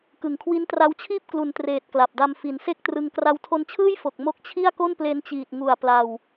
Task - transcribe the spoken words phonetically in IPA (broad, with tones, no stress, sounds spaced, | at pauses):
k ɯ˩˦ ŋ kʰ w i˦˥ n t r a˦˥ w t͡ɕʰ iː˥˩ p̚ k l u˨˩ n t r eː˨˩ t̚ k l a˨˩ p̚ d a˧ m f i˩˦ n s e˥˩ k̚ t r ɯ˧ ŋ k r a˧ w tʰ o˧ n t͡ɕʰ ɯː˥˩ j f o˨˩ k̚ m o˦˥ k̚ t͡ɕʰ i˥˩ a̯ k o˥˩ n p l e˧ n t͡ɕ iː˨˩ t̚ ŋ u˨˩ a̯ p l a˧ w